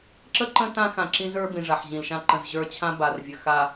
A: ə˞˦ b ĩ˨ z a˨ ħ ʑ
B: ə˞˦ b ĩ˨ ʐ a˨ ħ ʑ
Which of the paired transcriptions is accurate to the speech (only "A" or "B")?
B